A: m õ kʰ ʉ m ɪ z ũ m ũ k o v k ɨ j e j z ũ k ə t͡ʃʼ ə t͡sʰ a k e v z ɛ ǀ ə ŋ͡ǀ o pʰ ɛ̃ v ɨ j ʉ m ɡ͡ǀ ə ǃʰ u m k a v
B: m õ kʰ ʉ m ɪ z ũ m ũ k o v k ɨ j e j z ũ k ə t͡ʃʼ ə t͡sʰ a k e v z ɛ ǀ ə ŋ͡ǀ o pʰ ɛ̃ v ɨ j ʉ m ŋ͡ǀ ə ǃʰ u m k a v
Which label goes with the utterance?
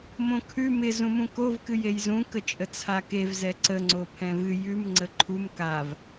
B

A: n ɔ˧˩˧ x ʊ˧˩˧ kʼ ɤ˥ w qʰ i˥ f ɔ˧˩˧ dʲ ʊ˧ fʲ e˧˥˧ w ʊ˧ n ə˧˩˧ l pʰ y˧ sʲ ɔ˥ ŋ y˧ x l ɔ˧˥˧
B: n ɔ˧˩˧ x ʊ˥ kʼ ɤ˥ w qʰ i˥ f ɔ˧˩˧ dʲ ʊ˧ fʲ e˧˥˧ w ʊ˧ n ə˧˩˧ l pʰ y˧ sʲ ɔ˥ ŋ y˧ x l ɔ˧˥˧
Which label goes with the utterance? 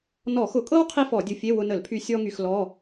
A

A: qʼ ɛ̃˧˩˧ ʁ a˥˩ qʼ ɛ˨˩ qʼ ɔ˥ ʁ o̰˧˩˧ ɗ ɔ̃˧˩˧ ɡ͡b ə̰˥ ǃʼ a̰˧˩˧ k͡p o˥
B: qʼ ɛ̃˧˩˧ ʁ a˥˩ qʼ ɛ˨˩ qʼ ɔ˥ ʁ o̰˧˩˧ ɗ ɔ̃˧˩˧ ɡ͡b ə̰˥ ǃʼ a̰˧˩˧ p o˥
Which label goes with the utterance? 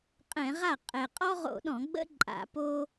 B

